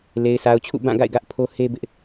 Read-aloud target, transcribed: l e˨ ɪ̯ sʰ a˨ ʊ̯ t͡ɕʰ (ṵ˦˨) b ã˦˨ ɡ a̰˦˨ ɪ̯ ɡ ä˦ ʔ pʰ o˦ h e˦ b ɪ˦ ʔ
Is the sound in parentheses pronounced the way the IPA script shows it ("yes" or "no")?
yes